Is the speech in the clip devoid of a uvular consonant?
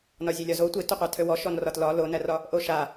no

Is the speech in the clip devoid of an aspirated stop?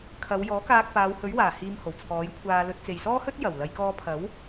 no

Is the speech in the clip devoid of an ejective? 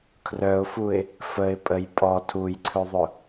no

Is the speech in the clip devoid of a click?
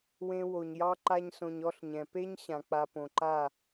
no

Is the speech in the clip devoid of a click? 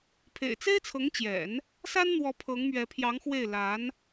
yes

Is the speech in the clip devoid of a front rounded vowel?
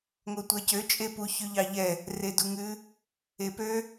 no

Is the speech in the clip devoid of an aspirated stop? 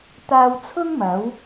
no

